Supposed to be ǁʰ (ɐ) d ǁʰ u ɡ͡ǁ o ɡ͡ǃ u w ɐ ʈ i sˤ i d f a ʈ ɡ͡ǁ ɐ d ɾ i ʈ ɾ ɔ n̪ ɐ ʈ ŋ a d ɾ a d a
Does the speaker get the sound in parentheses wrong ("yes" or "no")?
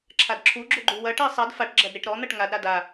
yes